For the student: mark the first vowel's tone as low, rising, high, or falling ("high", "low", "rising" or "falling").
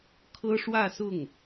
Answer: high